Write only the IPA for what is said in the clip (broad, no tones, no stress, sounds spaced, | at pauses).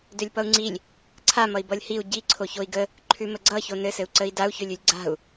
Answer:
d ø lʲ p ʌ u̯ ŋ͡ǀ i lʲ | ǀʰ a m ʌ i̯ b ʌ lʲ h i u̯ ɟ i ǀʰ o ç o i̯ ɡ ə | ǃʰ ʉ m ə ɡ͡ǀ ʌ ç o n ɘ s ɘ u̯ ǀ ə i̯ d a u̯ ç ø lʲ ʉ lʲ ɡ͡ǀ a̤ u̯